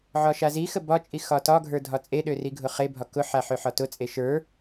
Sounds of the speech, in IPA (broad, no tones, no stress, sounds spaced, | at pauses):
ʕ ɒ ʃ a z i x ə b ɒ t͡ʃʼ i x ɒ t ɒ ɡʱ ə˞ dʱ ɒ t͡sʼ e ɗ ø r i ɡʱ ʊ χ e bʱ ɒ k ʊ ħ a ħ ø ħ ɒ t ʊ t͡sʼ e ʃ ə˞